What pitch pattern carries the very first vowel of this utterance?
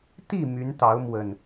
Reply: falling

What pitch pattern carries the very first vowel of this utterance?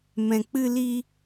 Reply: low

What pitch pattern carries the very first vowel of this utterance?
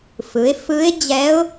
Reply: rising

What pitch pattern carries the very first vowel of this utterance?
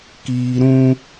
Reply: high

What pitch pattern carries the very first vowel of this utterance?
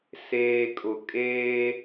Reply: low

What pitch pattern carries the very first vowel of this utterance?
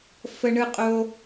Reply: high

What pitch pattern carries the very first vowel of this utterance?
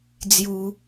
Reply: high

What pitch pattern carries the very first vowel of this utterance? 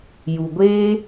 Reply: low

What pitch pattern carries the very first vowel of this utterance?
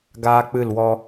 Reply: high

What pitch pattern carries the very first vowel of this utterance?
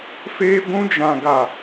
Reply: high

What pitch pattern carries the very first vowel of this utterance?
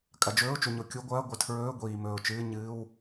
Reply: low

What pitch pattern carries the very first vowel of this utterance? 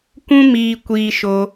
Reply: high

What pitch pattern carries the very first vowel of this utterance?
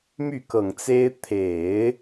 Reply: falling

